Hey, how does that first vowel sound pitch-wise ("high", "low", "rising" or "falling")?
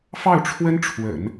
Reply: falling